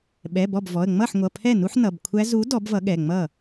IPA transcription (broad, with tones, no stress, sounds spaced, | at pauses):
ɓ ɛ˩˧˩ b ɔ˥˩ b v ɔ˩˧˩ ə̯ ŋ͡m ʌ˥˩ ħ ŋʷ ʌ˩˧˩ pʰ ɛ˥˩ n u˦˥ ħ n ʌ˩˧˩ b kʷʰ æ˦˥ z u˨˥ d ɔ˨˥ b v ʌ˨˥ ɠ ɛ˩˧˩ ŋ͡m ʌ˥˩